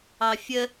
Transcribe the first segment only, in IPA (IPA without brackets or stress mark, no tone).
ɑ